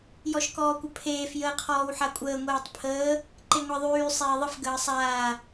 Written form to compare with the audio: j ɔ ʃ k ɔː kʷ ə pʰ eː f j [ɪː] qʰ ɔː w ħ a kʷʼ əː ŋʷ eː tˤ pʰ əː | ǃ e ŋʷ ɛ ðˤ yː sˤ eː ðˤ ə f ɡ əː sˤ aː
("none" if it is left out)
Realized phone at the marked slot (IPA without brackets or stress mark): əː